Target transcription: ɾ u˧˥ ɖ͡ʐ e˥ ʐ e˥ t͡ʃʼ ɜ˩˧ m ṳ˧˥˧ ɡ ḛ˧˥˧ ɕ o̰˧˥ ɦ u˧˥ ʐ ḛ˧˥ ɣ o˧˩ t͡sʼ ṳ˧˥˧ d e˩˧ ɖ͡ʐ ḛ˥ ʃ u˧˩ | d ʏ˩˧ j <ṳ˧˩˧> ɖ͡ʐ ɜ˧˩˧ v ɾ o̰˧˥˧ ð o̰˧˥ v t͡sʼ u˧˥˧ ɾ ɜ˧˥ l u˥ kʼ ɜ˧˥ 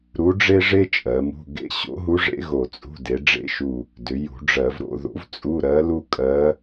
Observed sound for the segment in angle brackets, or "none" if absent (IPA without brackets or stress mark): ṳ˧˩˧